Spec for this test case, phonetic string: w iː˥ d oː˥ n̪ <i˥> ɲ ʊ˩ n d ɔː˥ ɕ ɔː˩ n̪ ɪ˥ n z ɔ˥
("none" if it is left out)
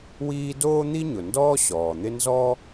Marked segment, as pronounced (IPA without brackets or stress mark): i˥